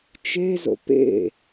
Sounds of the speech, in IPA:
t͡ʃ e z o̰ p ḛ

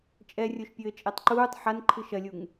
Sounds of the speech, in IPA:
t͡ʃʼ ɛ rʲ o ʃ pʲ ɘː t͡ʃʼ ɛ tˤ ǃ uː tˤ ħ a n ǃʰ ɨ ʃ ɐ lʲ u ŋ

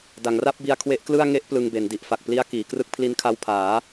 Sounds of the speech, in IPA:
d a˩˦ ŋ r a˥˩ p̚ b i˧ a̯ kʰ w e˦˥ ʔ k l ɯ˥˩ a̯ ŋ e˥˩ ʔ p l ɯ˧ ŋ b e˩˦ n d i˨˩ ʔ f a˨˩ k̚ p l i˦˥ a̯ k iː˩˦ k r ɯ˥˩ k̚ pʰ l i˧ n kʰ a˧ w pʰ aː˩˦

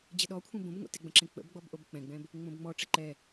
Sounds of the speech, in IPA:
d͡ʑ ə ɗ ɔ kʷʰ ẽ b õ b ŋʷ ɛ̰ t ɪ ɡ͡b ə̃ ǁ ẽ k͡p ə̰ b ɡ͡b ɔ b ʔ o b k͡p ɛ̃ ɡ͡b ɛ̃ b | ŋ͡m õ b ŋ͡m ɔ ʈ͡ʂ e ǃ ɛ

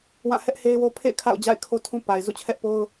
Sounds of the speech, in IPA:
w ã˦˨ h ɛ˦ ʔ h e˦ ɪ̯ w o˦ pʰ ḛ˦˨ ɪ̯ kʰ a̰˦˨ ʊ̯ d͡ʑ a̰˦˨ ɪ̯ kʰ o˦ tʰ ũ˦ p a˨ ɪ̯ z ṵ˦˨ t͡ɕʰ ɛ˦ ʔ p o˦ ʊ̯

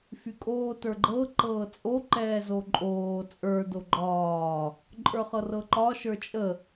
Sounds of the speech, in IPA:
f y kʼ oː t ə˞ ɡ͡ǃ ɤ ǃ ɤː t͡sʼ o ǃ ɛː z o ǃʼ oː t͡sʼ ə˞ d o ɡ͡ǃ ɒː | ǃʼ ə˞ χ ɤ r ɤ ǃ ɒ ʃ ə˞ t͡ʃʼ ə

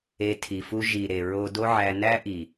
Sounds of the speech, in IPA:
e˧ tʰ i˨ f u˦ ʒ i˨ ɾ e˨ ɹ o˧ d o˦ ʕ æ˧ n æ˦ ʔ i˨

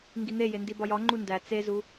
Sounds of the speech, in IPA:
ŋ ɡ i n̪ e j e n d i b ɒ j ɒ ŋ͡ǃ u n d æ t͡s e z u

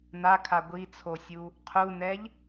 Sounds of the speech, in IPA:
n a kʰ a ɡʷ i t͡sʰ o sʲ u | qʰ u n ɛ ʎ

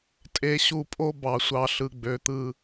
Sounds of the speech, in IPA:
tʼ e˨ ɕ u˨ pʼ o˦ b ɑ˨ sʷ ɑ˨ ɬ ɯ˨ ɡ͡b ø˨˦ t̪ ɯ˦

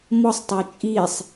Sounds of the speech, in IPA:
m ɔ sˤ tˤ ø t͡ʃʼ i sˤ

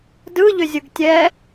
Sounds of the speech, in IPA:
d ɯ ʎ ʏ zʲ ɯ ɡ tʲ ɛ

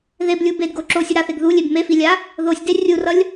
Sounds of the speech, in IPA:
ð e b lʲ u b e d ɡ o ǁ o sʲ u ɾ a θ e ɡ ð u lʲ e b m e f i lʲ a | ð o sʲ d e rʲ u r ʌ lʲ

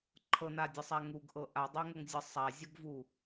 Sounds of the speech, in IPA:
ǃʰ ɤ n a dʲ ɤ sˤ æ ŋ u ɡ ʔ ɤ ʔ a dˤ æ ŋ ɤ ŋ zʲ ɤ sˤ a zʲ ɤ ɡ v u

